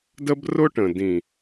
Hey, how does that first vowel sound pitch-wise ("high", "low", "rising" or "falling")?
high